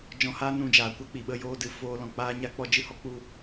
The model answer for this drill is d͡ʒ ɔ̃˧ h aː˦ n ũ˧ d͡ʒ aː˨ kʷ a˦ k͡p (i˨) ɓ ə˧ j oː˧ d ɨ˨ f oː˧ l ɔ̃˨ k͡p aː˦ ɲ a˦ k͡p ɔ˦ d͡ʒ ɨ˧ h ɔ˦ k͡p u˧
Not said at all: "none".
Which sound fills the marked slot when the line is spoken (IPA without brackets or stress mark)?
i˨